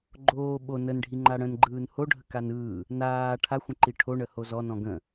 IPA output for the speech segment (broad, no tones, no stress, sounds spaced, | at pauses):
ɡ͡ǃ oː ɓ o n ə n ɖʱ i ŋ͡ǃ a ɽ ə̃ n ɡ͡ǃ ɯː n h o ɖʱ ə k a n ɯː | n aː ʈʰ a xʷ ə̃ ǃ i ʈʰ o ɳ ə h o z ɔ n ɔ̃ ɡ ə̃